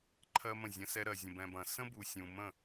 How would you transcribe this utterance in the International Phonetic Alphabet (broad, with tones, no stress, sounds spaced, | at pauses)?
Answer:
ǃʰ ɜ˦ m ə̃˦˨ zʲ ɐ̃˦ s ɛ˦ ɾ ɜ˨ zʲ ə̃˨ b ɛ̃˨ b ɐ̃˨ s ə̃˦ b u˨ sʲ ũ˨ m ə̃˦˨